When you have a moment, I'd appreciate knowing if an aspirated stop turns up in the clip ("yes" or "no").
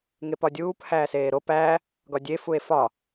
no